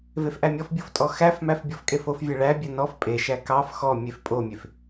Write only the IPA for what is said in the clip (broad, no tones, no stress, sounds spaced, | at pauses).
v e f ʔ æ mʲ ɔ f bʲ o f tʼ ɔ x æ f m æ f bʲ ɔ f kʼ e f o f vʲ e ɭ æ bʲ æ n ɔ f pʼ e ʃ æ k ɑ f x ɔ mʲ e f pʼ o mʲ e f